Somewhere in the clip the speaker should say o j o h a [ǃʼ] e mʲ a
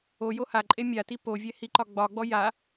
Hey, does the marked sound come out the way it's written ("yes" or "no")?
yes